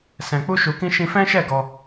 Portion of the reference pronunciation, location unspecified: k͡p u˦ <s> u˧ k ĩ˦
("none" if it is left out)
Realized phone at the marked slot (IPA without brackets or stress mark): ʃ